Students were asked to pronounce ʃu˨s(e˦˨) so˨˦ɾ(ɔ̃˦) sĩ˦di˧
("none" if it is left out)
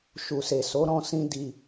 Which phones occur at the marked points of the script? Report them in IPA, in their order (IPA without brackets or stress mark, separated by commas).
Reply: e˨, ɔ̃˧